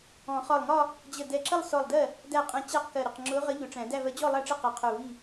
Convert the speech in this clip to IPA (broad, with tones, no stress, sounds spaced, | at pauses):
ɔ̃˨˩˦ χ ɒ˧˩ lˠ ŋ ɒ˥˧ | d͡ʑ ə˧˩ d ɛ˧˩ ǁ ə˥˧ lˠ s ɔ˧˩ lˠ d ɜ˥˩ | d æ˥˩ qʼ ɛ̃˧˥ t͡ɕ æ˥˧ q k ɜ˧˩ ɾ ɪ˧˩ q ŋ͡ǁ ʊː˧˥ ʁ ə˧˥ ʎ ʊ˨˩˦ ʈ͡ʂ æ̃˨˩˦ d æ˥˧ v ɜ˧˥ d͡ʑ ɔ˥˧ lˠ æ˥˩ ʈ͡ʂ ɪ˥˧ q ɛ˧˩ qʰ ʊː˧˩ v i˥˩